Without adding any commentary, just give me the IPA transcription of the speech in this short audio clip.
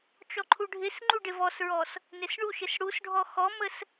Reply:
t͡ʃ ɔ ǃʰ u ɖʱ ɪ s ŋ͡ǃ u ɖ ɪ v ɔ s ɹ ɔ s | n ɪ s ɳ u ʃ ɪ s ɽ u s ɖʱ ɔ x ɔ m ə s

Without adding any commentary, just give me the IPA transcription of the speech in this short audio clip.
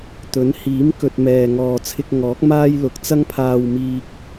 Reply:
t̪ ɵ˨˥ n h iː˨˥ m k ɵ˨ t̚ m ɛː˨ ŋ ɔː˨ t͡sʰ ɪ˧ k̚ ŋ ɔː˨˥ k̚ m aː˥ j l ʊ˨ k̚ t͡s ɐ˥ ŋ pʰ aː˧ w m iː˧ k̚

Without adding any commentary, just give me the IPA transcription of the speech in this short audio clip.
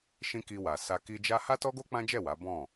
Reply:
ʃ ĩ˦ k i˧ w a˨ s a˧ k i˧ d͡ʒ a˦ h a˦ t ɔ˦ ɡ o˦ k͡p ã˦ d͡ʒ ɛ˦˨ w a˨˦ b ɔ̃˦˨

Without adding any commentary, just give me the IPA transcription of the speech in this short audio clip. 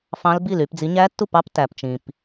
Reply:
f ɑ̃˦˥ l b i˥˨ l y˨˦ p d͡z i˨˦ ɲ æ˦˥ tː u˥˨ p ɑ˦˥ p t æ˩ p t͡ʃ ĩ˩ p

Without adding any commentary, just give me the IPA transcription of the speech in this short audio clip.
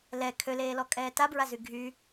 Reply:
l ɛ kʰ ø l eː l ɔ kʼ ɛː t a b ɹ a z y ɡʱ y

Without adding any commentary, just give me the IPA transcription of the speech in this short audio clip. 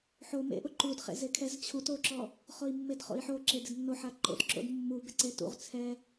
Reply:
ħ o m ḛ ʔ ʊ ǃ u d χ ḛ z e kʰ ɛ z t͡ɕʰ u t o ǁ ɔ | χ o i̯ mː e d χ o̰ i̯ ħ o ǁ e d ɪ d nː o ħ a ǃ o̰ t ǁ o̰ d mː u b ɪ ǀ e t ṵ ʁ t͡sʰ ɛ

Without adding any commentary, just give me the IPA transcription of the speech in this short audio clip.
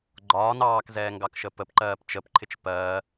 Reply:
ɡ͡ǃ ɒː n ɑː k z ɛː ŋ ɡ ɑ k ʃ ə p ə p ǃ ɜː p t͡ʃ ə p ǃʰ ɪ t͡ʃ p ɜː

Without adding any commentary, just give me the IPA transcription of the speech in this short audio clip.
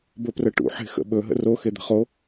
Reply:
b ɵ p r ə ʈ ṵ ħ e̤ x ə̰ ɓ ɵ ɦ ə̰ r o x e d̪ ə̤ χ o

